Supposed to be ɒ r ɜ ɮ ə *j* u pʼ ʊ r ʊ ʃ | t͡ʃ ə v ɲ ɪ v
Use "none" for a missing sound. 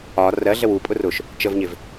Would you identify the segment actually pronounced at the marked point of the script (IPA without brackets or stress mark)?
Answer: w